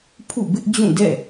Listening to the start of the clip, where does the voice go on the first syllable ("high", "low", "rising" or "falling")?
falling